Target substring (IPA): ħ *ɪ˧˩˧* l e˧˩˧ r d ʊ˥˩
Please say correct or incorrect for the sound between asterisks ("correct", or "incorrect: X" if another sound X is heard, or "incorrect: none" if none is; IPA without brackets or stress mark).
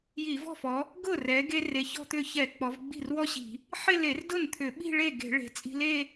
incorrect: ɪ˥˧